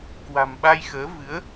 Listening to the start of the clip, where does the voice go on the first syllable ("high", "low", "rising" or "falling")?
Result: low